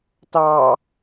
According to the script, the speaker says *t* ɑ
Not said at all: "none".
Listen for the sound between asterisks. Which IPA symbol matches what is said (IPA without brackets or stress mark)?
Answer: t